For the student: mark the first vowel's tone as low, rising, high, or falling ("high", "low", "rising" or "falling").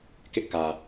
high